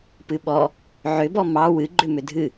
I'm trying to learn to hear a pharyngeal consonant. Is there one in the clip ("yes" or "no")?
yes